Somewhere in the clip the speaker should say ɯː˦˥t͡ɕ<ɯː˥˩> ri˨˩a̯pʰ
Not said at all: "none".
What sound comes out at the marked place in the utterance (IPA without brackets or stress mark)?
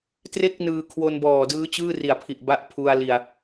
ɯː˥˩